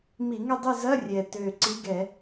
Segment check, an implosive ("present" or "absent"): absent